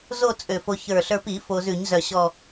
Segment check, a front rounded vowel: present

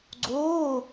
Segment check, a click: present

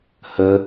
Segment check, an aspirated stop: absent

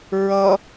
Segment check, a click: absent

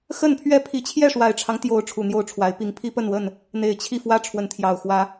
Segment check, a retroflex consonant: present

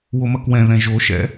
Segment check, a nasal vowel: present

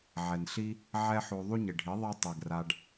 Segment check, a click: absent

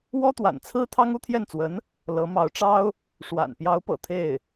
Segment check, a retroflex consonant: present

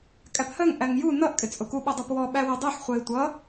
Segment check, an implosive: present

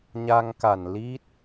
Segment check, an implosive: absent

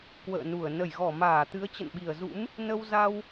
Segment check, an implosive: present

